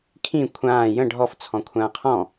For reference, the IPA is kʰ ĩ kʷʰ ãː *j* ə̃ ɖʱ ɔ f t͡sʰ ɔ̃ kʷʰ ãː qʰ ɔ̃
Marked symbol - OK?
yes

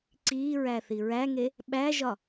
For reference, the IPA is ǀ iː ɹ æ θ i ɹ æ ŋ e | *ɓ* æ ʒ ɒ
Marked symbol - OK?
yes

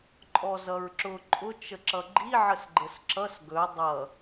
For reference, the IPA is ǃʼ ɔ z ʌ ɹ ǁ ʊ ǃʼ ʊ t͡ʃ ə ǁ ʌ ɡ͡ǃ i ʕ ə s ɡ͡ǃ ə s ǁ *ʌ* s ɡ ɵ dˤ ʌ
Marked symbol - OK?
yes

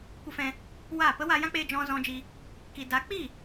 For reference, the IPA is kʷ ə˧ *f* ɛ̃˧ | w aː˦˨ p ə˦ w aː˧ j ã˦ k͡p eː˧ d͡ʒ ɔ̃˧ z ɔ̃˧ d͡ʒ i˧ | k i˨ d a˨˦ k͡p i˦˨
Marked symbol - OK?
yes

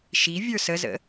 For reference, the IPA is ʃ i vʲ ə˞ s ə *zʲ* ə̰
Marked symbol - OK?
no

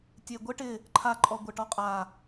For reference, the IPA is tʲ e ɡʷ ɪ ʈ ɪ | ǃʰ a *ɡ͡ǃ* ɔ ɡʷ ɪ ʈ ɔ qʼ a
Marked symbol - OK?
no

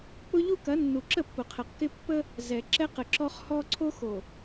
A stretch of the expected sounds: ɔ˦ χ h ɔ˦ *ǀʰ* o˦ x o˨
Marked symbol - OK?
yes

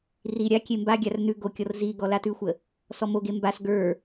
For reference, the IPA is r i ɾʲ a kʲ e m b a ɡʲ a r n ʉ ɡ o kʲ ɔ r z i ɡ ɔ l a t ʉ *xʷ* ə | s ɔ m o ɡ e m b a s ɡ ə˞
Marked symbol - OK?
yes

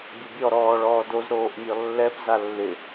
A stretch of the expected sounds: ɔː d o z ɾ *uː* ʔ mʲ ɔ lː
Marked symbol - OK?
no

